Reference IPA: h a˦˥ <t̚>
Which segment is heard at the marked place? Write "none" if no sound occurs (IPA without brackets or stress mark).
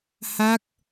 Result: k̚